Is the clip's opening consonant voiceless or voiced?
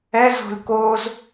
voiced